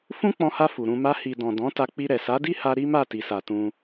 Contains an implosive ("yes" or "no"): no